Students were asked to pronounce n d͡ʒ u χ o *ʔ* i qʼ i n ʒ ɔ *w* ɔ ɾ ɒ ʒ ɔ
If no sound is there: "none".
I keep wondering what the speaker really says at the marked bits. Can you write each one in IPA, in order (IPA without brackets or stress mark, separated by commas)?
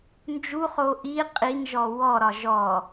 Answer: ʔ, w